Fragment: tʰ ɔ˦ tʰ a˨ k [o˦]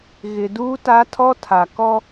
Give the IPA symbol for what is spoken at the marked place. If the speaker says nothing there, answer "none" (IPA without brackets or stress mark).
ɔ˦